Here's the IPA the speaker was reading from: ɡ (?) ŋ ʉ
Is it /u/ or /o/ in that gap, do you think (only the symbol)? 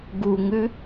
u